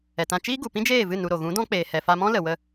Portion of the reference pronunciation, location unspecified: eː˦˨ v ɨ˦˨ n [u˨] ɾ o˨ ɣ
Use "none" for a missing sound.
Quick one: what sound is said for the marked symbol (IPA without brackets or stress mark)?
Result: u˧